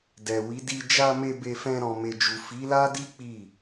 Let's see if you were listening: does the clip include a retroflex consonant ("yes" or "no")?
no